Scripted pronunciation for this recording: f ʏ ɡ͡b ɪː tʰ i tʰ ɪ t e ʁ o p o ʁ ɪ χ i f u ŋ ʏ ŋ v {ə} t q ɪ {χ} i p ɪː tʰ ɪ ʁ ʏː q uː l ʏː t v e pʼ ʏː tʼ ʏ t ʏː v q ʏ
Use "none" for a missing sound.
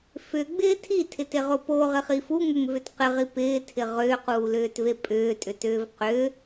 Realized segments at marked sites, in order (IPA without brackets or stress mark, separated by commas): ʏ, ʁ